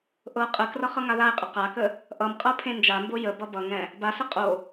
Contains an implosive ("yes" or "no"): no